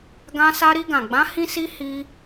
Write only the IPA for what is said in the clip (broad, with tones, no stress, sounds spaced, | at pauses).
ɡ ã˧ s a˧ ɾ i˧ ɡ ã˨ ɡ͡b ã˨˦ h ĩ˧ s i˧ h i˧